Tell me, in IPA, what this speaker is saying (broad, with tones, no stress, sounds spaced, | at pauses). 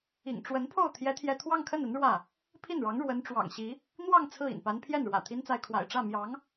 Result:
ḭ˨˩ ŋ ʈ͡ʂ w ə˧˥ n pʰ o˥˩ ʊ̯ t̪ʰ j ɛ˥ t̪ʰ j ɛ˥˧ t̪ʰ w ɑ˥˧ ŋ kʰ ə˥˩ n ə˧˥ n ɻ w ä˥˩ | pʰ i˥˩ n ɻ ɑ˧˥ ŋ ɻ w ə˧˥ n ʈ͡ʂ w ɑ̰˨˩ ŋ ɕ i˧˥ | n̪ w ɑ˥˧ ŋ t͡sʰ ɹ̩˥˩ ḭ˨˩ n p a˧˥ n pʰ j ɛ˥˩ n ɻ w ä̰˨˩ t̪ʰ i˥ n t͡s a˥˩ ɪ̯ kʰ w a̰˨˩ ɪ̯ ʈ͡ʂ ä˥˩ m j ɑ˧˥ ŋ